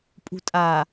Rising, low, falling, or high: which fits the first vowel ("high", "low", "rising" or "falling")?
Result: low